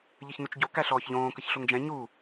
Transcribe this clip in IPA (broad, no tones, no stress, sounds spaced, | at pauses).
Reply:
ʎ ə ç n u t͡ʃ ɟ o k æ ɬ ɔː ç ʎ õː k ə ç ɬ o ŋ d͡ʒ ɛ̃ ɲ u